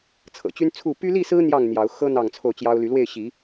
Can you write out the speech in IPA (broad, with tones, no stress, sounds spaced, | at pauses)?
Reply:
t͡sʰ ɤ̰˨˩ t͡ɕ y˦ n t͡sʰ u˥˨ p y˦ l i˥˨ s ɹ̩˦ n̪ j ɑ˥˨ ŋ n̪ j ɑ˨˦ ʊ̯ x ɤ˦ n̪ ɑ˥˨ ŋ t͡sʰ o˥˨ ʊ̯ t͡ɕ j ɑ˦ ʊ̯ l y˨˦ l w e˥˨ ɪ̯ ɕ i˨˦